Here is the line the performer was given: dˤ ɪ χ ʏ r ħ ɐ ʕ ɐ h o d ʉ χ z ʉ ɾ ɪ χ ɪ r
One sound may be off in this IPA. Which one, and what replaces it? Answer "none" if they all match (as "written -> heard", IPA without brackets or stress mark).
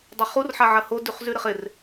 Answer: ʏ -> u